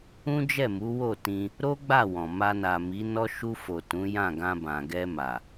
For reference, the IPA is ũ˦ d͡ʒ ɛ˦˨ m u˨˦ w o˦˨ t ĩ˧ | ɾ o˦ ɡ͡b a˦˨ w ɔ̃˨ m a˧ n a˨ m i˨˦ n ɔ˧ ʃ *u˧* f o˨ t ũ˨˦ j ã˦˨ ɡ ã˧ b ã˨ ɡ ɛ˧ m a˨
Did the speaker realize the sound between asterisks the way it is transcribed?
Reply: yes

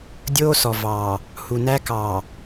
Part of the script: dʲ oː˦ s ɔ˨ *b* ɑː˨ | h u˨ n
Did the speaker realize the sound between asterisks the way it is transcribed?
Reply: no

